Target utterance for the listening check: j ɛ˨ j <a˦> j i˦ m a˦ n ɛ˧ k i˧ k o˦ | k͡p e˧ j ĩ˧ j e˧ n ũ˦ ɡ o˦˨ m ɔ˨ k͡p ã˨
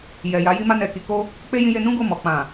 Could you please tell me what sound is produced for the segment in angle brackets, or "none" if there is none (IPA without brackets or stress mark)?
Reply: a˨˦